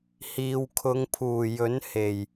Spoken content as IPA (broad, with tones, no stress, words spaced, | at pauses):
hiː˨wkʰʊ˨˧ŋpʰuː˨˩jɵ˨˥n he˨˩j